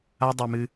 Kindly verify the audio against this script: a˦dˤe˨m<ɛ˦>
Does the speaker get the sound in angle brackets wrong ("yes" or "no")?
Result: yes